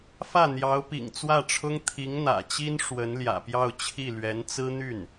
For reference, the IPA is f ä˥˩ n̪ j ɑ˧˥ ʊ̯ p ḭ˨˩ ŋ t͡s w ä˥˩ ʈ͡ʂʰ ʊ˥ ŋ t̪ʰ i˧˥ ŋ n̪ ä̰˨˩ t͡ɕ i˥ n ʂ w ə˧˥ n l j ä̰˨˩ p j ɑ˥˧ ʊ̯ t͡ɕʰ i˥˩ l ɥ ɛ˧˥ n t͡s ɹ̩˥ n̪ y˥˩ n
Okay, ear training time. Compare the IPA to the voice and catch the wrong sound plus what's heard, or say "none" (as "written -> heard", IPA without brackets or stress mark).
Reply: none